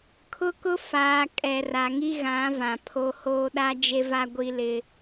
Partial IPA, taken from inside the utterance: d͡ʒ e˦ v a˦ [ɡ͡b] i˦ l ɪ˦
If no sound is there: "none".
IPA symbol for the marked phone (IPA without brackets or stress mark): ɡʷ